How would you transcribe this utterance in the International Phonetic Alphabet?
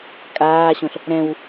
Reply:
kʼ aː ɕ õ ɬ | ɾ ɛ̃ w

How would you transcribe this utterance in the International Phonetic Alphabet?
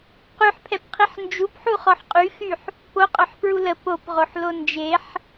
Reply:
q y ħ pʰ ɛ p qʰ i ħ n d͡ʒ u p ħ u χ ɔ ħ qʼ y x y ħ | p o qʼ œ ħ p ɹ u l ə p o p ʁ o ħ l o n d͡ʒ e ħ

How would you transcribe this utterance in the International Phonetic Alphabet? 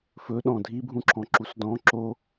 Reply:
f ɵ ɗ ɔ̃ dʱ i bʱ ũ ǁʰ ɔ̃ ǁ u s d ɔ̃ ǁ o

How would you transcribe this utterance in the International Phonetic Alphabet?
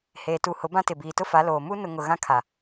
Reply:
h eː˨ t u˨ h ʊ˨˦ b ã˦ t ɪ˨ b iː˨ t ʊ˦ f a˨˦ l oː˨ m u˦ n ʊ˨ ŋ ʊ˨ ɣ ã˦ kʰ a˨

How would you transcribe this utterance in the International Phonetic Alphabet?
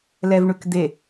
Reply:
l ɛ v ɳ ʉ k d̪ e

